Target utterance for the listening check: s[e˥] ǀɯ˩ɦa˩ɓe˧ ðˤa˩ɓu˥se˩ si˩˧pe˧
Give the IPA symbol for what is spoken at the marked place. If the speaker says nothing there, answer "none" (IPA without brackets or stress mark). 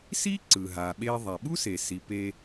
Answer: i˥